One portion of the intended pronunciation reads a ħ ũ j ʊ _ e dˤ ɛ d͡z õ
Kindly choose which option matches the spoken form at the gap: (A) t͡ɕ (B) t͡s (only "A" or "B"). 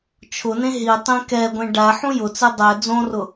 B